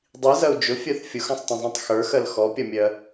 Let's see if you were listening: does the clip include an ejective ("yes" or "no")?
no